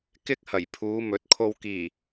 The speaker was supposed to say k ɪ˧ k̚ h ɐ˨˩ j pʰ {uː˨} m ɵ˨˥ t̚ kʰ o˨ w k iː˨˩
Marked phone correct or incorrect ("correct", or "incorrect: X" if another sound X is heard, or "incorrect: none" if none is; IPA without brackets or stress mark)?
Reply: incorrect: uː˨˧